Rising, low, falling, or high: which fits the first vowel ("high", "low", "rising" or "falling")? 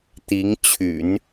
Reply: rising